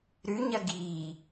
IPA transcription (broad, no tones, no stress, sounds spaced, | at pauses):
ɾ ʉ ɲ ɐ ɡ i